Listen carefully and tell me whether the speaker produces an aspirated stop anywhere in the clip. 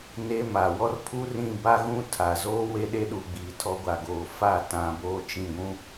yes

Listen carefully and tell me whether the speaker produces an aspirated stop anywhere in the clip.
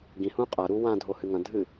no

